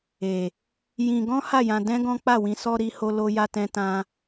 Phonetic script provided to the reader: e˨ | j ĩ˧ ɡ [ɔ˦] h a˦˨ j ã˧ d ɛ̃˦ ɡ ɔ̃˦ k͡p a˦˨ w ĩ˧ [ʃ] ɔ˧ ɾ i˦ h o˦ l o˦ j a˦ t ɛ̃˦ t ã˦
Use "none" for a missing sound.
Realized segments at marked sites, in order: ɔ̃˦, s

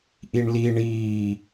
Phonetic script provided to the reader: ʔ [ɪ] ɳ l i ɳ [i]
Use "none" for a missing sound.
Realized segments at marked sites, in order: i, iː

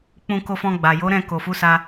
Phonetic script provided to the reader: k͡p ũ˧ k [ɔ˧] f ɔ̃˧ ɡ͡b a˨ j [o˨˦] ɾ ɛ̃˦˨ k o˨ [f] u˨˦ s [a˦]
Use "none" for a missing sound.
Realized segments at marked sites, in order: o˧, o˨˦, f, a˧

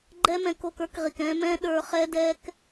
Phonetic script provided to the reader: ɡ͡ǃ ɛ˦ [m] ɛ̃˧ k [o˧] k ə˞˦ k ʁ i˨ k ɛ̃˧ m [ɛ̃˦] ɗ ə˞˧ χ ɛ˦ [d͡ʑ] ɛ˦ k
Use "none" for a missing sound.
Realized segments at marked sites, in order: m, o˧, ɛ̃˦, d

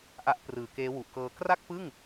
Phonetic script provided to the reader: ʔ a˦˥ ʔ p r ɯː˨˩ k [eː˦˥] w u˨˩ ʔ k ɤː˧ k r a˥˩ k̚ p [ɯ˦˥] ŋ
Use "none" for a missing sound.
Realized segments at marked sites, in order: eː˦˥, ɯ˥˩

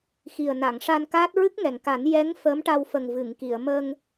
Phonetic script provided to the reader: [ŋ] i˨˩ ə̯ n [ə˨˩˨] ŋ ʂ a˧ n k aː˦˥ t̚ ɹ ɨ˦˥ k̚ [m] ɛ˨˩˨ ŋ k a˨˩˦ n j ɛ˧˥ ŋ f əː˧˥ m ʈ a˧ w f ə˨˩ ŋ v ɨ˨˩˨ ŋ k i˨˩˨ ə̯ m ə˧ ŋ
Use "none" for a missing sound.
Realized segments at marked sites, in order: x, a˨˩˨, ŋ

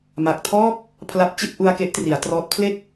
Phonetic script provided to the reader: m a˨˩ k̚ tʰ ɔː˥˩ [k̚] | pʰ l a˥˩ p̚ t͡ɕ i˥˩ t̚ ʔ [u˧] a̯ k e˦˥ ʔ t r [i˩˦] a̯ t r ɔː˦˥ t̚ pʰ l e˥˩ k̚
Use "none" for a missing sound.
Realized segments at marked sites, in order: k̚, u˧, i˩˦

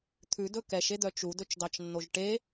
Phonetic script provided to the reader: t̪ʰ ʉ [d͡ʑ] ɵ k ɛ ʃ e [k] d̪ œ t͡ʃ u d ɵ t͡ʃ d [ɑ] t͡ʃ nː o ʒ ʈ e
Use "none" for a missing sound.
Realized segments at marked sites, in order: d, none, ɑ

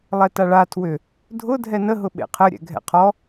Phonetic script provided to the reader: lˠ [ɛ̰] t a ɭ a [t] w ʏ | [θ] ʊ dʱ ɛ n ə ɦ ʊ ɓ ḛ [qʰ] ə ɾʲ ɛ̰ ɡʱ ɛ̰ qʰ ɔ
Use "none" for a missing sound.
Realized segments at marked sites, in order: ɛ, tʰ, dʱ, qʰ

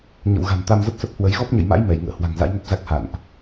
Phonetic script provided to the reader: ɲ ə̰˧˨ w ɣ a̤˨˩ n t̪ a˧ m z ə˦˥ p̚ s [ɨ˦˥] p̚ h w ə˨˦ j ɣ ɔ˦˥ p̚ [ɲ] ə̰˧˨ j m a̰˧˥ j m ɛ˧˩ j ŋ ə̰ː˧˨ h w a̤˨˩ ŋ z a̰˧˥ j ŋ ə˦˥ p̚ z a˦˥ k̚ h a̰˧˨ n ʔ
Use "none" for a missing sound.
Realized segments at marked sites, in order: ə˦˥, ɲ

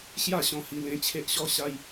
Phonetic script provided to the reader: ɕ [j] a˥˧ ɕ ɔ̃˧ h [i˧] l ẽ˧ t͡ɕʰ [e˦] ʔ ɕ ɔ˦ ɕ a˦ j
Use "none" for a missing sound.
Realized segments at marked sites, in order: j, i˧, e˦

